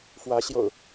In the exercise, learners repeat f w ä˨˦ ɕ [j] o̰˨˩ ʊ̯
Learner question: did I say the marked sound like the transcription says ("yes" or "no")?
yes